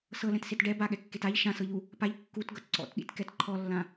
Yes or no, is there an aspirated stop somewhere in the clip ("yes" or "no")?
yes